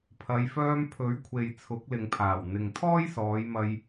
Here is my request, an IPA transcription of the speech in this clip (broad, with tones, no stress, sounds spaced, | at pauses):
pʰ ɐ˨˧ j f œː˧ m pʰ ɵ˨˥ ɥ kʷʰ e˨ j t͡sʰ ʊ˨˥ k̚ l ɪ˨ ŋ pʰ aː˨˩ w n̪ ɪ˨ ŋ t̪ʰ ɔː˥ j s ɔː˨˧ j m ɐ˧ j